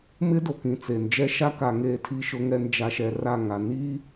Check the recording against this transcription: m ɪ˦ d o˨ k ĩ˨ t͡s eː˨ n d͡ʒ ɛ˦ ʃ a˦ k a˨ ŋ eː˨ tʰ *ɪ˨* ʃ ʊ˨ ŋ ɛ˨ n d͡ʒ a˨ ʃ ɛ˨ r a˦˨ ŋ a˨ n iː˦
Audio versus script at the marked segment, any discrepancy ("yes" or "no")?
yes